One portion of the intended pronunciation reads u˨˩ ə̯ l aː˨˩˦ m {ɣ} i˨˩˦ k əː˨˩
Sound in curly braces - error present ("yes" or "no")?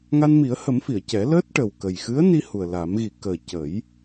no